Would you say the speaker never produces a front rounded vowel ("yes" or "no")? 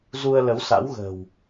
yes